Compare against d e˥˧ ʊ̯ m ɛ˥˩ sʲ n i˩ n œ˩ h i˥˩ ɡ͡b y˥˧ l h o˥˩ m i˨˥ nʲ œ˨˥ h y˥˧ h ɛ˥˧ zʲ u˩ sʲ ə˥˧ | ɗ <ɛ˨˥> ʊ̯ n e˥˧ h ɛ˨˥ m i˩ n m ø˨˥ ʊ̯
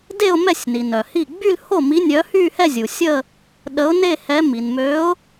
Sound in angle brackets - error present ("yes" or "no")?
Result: yes